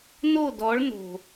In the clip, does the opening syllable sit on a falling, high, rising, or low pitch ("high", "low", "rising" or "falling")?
falling